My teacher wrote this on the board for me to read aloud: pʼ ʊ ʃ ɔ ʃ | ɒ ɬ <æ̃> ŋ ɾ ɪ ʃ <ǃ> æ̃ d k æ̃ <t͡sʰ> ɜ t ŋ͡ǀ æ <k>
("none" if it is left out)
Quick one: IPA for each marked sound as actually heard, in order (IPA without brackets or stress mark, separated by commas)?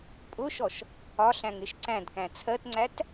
æ̃, ǀ, t͡sʰ, t